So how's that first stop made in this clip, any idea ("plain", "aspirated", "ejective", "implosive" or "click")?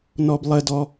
plain